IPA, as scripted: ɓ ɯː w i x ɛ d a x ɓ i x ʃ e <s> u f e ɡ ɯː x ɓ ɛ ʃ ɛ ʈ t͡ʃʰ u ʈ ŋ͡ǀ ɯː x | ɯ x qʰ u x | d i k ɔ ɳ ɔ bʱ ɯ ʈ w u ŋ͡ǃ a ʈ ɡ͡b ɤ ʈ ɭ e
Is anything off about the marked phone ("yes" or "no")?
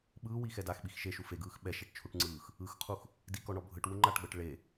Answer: yes